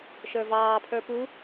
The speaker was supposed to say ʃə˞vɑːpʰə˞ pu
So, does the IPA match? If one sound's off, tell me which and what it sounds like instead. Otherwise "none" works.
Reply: none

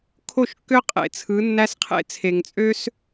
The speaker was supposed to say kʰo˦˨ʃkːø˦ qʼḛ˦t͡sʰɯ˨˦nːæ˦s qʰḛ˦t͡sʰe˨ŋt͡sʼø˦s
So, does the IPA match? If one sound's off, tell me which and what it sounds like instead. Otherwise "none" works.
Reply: none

